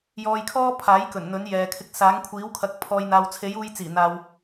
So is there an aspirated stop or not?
yes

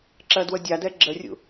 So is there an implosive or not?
no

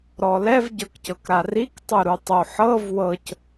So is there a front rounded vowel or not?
no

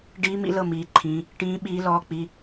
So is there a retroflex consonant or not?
yes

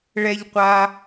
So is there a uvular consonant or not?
yes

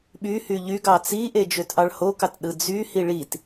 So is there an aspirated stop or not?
no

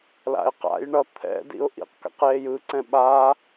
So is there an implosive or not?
yes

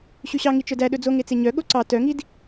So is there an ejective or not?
no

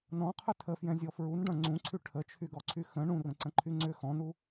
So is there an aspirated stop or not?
yes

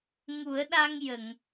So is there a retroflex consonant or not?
no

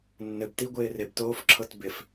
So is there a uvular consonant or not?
no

